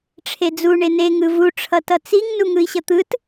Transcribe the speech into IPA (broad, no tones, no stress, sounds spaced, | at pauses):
ʈ͡ʂʰ e d͡z u ɳ e n e ŋ ɯ v u ʈ͡ʂʰ ʌ t ʌ t͡s i ŋ n u ŋ ɯ i̯ ɕ ʌ t̪ ɯ t